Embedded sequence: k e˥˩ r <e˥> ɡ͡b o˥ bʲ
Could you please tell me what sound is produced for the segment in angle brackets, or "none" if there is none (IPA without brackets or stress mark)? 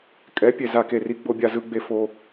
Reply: i˥